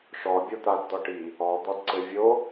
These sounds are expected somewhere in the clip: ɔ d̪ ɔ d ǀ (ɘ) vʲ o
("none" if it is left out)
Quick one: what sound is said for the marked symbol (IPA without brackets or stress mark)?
ɘ